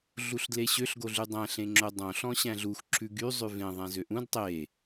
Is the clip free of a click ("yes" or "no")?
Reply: no